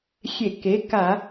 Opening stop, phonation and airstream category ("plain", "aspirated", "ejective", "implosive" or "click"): plain